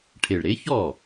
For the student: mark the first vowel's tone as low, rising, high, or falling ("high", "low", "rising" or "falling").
low